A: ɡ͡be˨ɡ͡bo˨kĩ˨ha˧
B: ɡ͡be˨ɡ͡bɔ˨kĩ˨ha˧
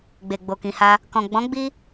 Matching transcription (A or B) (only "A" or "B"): A